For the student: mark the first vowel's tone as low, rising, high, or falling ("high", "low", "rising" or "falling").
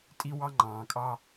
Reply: high